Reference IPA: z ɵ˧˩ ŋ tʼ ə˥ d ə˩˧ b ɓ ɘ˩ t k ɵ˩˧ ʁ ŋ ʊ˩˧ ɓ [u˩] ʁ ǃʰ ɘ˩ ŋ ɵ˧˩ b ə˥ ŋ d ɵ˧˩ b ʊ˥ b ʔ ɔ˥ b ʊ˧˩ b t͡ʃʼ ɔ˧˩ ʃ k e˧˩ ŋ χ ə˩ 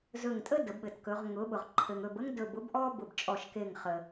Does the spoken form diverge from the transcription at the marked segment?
yes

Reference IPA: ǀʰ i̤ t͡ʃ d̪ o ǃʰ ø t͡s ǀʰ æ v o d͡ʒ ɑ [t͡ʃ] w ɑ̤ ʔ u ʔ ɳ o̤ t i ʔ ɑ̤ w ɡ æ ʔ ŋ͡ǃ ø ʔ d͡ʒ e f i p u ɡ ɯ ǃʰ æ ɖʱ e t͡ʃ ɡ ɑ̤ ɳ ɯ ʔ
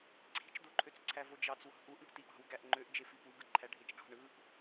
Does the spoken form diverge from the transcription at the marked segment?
yes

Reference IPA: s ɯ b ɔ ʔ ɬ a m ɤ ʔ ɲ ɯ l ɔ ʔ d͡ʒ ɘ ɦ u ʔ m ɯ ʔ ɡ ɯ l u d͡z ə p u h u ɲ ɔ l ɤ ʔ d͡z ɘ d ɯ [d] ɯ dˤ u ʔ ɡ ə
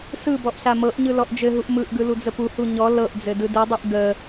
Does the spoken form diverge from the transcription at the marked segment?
no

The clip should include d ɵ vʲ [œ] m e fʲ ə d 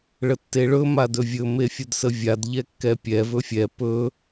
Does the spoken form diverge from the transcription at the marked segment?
yes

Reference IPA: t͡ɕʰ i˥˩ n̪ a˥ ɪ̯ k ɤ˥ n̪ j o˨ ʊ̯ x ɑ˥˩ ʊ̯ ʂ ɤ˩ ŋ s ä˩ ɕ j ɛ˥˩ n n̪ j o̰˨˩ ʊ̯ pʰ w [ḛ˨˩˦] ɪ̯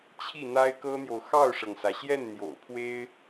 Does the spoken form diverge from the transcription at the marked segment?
yes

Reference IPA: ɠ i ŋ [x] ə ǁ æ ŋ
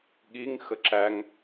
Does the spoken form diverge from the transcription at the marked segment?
no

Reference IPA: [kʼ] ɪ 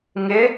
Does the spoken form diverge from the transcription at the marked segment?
yes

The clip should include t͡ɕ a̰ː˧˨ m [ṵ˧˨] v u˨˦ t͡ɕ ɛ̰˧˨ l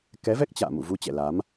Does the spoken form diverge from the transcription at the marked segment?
no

